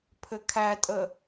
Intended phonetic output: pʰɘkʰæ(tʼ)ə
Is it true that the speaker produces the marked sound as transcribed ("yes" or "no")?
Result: yes